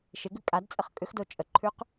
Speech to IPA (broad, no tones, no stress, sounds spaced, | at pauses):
ʃ e ɡ ʉ kʼ a d t͡sʼ ə χ kʼ ʏ x d o t͡ʃʼ ə ǃʰ ʉ q